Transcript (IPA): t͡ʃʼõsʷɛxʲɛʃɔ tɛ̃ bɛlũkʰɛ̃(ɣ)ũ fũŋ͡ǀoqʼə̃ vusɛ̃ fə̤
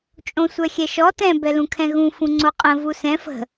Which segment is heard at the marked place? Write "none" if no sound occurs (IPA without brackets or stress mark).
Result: ɣ